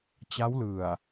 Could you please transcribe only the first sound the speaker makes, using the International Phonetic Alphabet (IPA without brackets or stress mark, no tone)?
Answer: t͡ɕ